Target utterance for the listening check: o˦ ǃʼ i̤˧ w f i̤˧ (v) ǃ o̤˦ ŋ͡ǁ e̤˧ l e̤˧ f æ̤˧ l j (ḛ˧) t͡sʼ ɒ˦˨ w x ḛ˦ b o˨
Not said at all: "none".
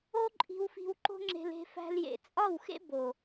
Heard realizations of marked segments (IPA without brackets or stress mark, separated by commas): w, ḛ˨